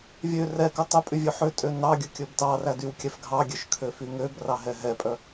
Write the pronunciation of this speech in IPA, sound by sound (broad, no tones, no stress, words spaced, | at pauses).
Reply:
vʲø rɛkœ tˤɵpʼy vʲøħøtʼø nɑɡʲɵ kʲɵbtɑræ dywkʲɛfɡʱɑɡʲøʃ kʰøfyŋøbrɑ ɦɛɦɛpʼœ